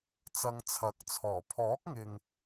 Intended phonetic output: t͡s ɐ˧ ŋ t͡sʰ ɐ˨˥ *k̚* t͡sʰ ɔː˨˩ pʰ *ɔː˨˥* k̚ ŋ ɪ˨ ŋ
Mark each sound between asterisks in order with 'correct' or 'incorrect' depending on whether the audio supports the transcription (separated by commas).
correct, correct